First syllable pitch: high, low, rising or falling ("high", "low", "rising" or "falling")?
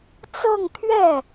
falling